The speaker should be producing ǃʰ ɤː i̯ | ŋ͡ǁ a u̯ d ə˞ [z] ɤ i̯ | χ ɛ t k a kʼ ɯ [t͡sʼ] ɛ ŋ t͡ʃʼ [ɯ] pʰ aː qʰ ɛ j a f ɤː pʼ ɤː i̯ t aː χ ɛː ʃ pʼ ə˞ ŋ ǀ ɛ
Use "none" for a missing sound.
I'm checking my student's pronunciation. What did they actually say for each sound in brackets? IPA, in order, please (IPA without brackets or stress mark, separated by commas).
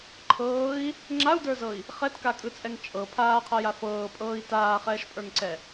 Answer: z, t͡sʼ, ɤ